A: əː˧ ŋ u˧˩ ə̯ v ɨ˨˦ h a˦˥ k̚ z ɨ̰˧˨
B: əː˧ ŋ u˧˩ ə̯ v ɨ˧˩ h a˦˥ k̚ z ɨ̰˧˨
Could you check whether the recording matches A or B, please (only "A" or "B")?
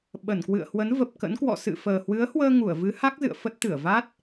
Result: A